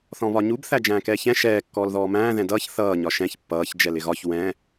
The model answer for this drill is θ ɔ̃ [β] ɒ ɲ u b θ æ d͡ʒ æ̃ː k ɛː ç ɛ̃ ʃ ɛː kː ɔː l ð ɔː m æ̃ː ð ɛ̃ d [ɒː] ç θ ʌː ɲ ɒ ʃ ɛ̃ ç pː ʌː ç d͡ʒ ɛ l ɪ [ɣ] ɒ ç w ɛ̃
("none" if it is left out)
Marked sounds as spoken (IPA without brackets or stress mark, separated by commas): β, ʌː, ɣ